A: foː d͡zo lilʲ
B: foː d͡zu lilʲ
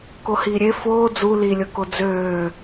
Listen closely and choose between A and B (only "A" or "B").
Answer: B